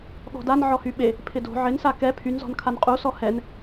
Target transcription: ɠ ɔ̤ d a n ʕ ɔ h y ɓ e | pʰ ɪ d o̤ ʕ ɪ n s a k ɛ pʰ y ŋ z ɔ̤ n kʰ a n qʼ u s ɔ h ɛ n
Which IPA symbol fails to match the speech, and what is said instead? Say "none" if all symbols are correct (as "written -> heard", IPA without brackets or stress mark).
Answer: ŋ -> n